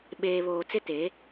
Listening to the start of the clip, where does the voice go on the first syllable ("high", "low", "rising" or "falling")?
low